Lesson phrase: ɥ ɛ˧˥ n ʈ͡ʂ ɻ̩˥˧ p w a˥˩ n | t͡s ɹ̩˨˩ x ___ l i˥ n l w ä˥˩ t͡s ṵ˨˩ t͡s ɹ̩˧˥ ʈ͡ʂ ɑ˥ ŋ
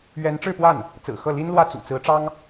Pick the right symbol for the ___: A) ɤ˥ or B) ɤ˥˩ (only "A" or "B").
B